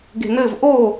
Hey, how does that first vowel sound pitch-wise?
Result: low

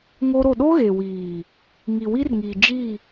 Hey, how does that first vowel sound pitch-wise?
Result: high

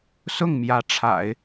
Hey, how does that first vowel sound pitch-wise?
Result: falling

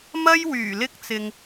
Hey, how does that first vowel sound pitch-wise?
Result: high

